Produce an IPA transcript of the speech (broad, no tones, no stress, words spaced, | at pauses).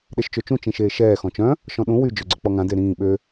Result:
ɗeʃt͡ʃøt͡ʃũ t͡ʃĩʃeːʃɛː xɔ̃t͡ʃœ̃ | ʃɔ̃ɗũ wy d͡ʒøɡ͡ǀøk͡pɔŋã deɾĩː ɓø